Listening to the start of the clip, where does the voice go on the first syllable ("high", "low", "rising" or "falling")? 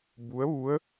rising